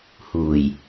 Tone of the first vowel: low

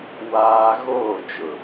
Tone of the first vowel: high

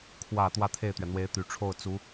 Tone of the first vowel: low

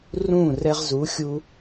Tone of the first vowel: falling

